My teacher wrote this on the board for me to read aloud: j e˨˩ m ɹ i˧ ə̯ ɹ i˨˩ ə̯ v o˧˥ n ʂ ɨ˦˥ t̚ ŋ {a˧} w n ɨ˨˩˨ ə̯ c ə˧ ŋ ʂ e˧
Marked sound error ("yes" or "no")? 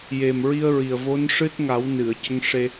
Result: yes